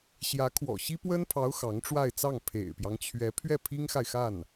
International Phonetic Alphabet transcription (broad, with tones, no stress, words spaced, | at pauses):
ɕjä˧˥kʰwɔ̰˨˩ ɕi˥pwə˥npʰɑ˧˥ʊ̯ xɑ˧˥ŋʈ͡ʂwa˥˧ɪ̯t͡sɑ˥˩ŋ pʰḛ˨˩ɪ̯pjɑ˦ŋt͡ɕʰɥɛ˧˥ pʰɥɛ˥˩pʰi˥ŋxa˨ɪ̯xa˥˩n